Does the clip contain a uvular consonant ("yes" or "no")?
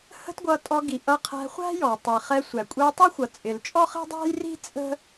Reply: yes